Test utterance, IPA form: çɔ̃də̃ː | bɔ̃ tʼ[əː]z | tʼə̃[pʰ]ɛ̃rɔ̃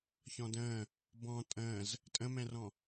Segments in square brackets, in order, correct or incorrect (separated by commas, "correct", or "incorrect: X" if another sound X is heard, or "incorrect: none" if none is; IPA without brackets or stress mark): incorrect: ə̃ː, incorrect: m